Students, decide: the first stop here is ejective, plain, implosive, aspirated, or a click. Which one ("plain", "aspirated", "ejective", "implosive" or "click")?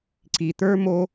click